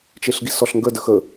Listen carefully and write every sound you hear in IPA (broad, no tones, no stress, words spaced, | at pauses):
t͡ʃeɬɡisɔɬŋɡə dəxə